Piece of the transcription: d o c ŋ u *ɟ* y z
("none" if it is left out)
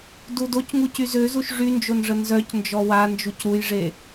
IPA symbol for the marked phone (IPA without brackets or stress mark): c